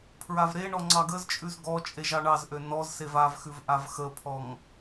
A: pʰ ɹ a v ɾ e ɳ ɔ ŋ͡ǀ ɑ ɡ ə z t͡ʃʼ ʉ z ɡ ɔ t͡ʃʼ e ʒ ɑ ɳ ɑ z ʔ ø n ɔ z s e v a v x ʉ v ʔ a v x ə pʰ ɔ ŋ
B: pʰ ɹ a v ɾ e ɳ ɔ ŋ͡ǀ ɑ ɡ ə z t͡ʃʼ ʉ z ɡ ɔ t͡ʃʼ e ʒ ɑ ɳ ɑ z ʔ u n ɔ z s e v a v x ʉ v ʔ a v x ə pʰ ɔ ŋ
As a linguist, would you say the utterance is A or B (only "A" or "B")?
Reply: A